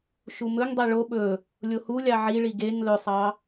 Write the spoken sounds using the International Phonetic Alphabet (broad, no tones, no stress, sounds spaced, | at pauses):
ʃ u m ɵ ŋ dˤ e ɭ o ɓ ɵ | lʲ o h u lʲ ɑ ʕ i ɭ i ɡ e ŋ l ɵ sˤ ɑ